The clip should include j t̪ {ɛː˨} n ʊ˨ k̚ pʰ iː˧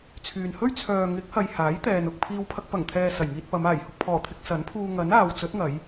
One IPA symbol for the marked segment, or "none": ɛː˨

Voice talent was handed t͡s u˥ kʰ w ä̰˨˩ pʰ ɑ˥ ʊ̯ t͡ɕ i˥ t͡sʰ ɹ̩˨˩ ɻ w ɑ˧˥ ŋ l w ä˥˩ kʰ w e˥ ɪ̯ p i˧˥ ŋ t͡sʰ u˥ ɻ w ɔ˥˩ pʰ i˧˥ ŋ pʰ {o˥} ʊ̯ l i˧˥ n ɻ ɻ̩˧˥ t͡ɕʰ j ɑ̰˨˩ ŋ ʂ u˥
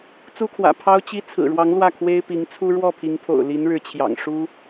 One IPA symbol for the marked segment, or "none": o̰˨˩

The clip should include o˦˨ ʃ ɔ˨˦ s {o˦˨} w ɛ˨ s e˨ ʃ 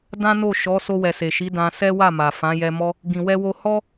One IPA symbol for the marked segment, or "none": o˧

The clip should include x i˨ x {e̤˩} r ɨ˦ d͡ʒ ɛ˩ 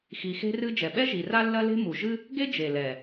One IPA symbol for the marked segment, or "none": e̤˦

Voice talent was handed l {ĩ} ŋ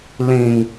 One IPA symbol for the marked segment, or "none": ĩ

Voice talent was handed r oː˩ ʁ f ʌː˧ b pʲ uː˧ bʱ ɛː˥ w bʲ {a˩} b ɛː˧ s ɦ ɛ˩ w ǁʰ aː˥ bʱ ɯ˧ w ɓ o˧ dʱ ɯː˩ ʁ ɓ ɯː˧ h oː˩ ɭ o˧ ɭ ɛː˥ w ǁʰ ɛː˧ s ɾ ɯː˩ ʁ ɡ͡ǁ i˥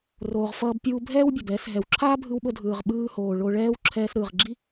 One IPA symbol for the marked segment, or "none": a˩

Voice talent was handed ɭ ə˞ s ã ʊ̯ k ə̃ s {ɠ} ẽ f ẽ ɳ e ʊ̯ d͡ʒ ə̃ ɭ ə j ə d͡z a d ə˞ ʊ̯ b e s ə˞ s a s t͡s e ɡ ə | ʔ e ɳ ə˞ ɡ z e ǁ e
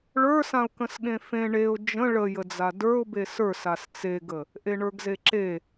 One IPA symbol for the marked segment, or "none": ɠ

